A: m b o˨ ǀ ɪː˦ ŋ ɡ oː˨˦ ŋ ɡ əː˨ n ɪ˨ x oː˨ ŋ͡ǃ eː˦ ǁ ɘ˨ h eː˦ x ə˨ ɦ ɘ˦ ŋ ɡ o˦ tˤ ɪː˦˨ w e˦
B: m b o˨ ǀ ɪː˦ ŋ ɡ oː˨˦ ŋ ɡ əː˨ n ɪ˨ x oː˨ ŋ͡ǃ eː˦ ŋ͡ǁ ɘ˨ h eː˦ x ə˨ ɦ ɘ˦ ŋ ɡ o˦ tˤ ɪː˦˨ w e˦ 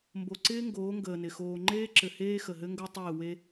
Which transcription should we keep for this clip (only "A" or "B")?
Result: A